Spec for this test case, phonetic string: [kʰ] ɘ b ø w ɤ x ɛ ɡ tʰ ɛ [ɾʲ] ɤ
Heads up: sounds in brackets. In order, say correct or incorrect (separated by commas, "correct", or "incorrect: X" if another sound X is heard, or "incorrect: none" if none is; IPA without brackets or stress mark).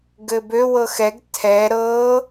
incorrect: ɡ, incorrect: ɾ